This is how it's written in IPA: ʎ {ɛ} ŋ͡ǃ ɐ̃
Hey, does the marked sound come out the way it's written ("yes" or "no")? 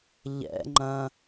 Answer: no